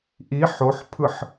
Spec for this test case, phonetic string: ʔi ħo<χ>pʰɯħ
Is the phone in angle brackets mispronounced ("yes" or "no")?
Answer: yes